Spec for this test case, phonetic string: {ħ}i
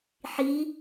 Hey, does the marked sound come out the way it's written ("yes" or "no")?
yes